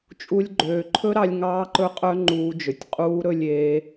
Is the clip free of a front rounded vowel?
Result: no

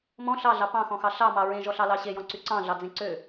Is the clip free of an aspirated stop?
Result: yes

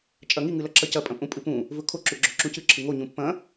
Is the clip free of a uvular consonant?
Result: yes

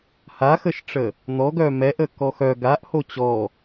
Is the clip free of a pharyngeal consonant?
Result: yes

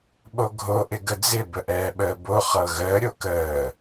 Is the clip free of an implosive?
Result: no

